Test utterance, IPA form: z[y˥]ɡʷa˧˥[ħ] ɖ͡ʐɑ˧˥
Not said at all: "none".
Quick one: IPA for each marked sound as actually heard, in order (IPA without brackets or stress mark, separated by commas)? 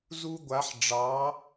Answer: u˥, ħ